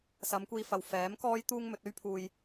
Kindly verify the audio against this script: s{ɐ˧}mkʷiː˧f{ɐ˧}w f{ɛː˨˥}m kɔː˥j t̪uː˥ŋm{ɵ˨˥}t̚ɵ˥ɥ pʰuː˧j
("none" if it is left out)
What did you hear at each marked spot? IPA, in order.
ɐ˨˧, ɐ˨, ɛː˨˥, ɵ˨˥

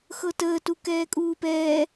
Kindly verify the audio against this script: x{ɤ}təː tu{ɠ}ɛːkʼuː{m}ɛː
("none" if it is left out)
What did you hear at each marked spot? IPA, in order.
ɤ, k, p

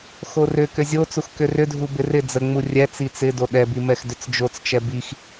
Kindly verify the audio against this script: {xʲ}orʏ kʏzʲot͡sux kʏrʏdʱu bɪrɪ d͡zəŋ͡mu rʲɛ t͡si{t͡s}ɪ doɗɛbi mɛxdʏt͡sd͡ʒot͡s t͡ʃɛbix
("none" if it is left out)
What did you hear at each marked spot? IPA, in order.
x, t͡s

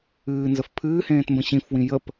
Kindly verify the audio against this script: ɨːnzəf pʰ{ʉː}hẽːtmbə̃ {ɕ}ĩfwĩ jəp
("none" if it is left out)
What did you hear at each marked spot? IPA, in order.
ɨː, ɕ

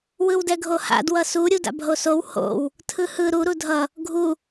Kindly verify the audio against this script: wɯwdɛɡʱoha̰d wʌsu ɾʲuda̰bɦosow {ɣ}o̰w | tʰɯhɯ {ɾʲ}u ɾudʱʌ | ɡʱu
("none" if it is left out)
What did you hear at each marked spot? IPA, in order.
h, ɾ

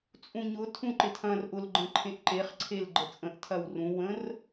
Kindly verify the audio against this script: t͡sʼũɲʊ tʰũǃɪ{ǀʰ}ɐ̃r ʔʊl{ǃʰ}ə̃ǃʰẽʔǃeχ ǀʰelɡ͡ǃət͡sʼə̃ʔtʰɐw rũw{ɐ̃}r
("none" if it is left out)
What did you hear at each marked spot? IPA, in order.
tʰ, ɡ͡ǃ, ə̃

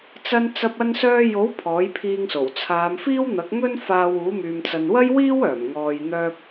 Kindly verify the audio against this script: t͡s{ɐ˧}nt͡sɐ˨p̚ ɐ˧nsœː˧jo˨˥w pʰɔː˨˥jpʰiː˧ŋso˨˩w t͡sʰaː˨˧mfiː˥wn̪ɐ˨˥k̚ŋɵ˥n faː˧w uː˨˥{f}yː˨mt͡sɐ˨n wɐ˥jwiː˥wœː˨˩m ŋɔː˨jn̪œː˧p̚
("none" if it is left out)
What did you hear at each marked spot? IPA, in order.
ɐ˨, m

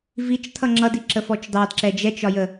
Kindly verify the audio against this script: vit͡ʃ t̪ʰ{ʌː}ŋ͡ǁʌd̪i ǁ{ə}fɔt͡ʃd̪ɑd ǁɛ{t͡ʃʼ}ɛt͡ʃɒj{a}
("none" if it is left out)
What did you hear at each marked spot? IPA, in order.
ʌ, ə, d͡ʒ, ə

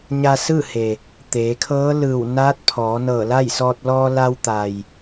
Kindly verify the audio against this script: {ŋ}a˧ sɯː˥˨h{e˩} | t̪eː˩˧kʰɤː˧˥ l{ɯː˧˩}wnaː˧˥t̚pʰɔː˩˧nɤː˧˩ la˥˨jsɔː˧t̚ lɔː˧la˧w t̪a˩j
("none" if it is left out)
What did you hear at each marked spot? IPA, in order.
ɲ, e˩, ɯː˧˩

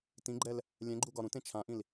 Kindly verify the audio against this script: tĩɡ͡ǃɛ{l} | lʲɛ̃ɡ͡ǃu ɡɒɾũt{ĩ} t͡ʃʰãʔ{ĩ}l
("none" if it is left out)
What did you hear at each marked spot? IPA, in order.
l, ẽ, ĩ

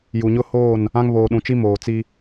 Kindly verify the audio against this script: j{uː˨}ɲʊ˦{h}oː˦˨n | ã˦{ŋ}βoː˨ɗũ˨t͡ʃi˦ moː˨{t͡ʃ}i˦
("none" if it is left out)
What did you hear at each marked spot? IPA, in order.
u˨, h, ŋ, t͡s

